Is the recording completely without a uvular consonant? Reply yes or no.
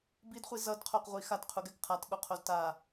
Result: no